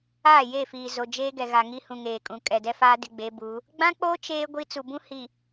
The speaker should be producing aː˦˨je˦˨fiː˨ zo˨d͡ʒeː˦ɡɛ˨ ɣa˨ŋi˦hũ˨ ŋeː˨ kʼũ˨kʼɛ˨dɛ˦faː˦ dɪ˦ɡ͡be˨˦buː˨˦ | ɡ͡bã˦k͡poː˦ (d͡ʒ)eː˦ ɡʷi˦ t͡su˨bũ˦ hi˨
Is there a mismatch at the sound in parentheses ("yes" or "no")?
yes